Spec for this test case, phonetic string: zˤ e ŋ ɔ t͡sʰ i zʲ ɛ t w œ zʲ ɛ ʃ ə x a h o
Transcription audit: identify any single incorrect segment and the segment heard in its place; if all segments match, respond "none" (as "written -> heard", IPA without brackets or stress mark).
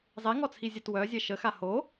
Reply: none